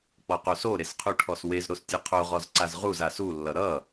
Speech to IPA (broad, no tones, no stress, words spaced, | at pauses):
k͡pɔqosoɾes qʰuʈʰɔswezɾos tʲɨqʰoʁɔz ǀazʁuza sulːʌ ɾʌ